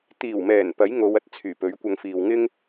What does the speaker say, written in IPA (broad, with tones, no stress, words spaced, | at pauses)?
t̪iː˨˩wmɛː˨˩n pɐ˨˥jŋo˨˧wɐ˨t̚ t͡sʰyː˨˩pɵ˨˥ɥkʷɐ˧ŋ fiː˨wŋɪ˥ŋ